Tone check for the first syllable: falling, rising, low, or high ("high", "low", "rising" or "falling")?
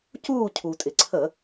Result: falling